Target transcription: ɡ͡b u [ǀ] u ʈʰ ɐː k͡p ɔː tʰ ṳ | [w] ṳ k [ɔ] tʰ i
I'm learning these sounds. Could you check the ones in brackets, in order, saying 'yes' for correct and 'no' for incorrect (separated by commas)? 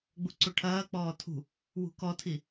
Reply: yes, yes, yes